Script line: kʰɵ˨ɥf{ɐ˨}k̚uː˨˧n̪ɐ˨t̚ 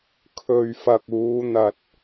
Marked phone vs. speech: correct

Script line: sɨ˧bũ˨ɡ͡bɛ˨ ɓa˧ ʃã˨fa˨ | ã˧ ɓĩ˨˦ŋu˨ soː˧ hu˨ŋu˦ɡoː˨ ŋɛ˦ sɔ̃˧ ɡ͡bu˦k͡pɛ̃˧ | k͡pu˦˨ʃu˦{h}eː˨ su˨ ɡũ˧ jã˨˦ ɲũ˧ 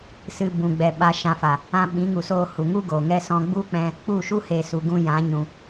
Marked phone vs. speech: correct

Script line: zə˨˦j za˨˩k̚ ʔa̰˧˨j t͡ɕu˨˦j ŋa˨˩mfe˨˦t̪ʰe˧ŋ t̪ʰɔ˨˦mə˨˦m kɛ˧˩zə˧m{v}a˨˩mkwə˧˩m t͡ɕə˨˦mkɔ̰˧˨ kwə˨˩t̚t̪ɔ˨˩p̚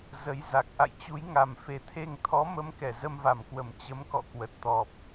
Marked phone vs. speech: correct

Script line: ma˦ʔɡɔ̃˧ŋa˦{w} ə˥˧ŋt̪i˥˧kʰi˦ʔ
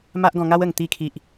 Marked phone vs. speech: correct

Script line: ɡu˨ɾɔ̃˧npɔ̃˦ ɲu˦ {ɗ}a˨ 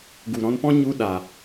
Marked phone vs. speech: correct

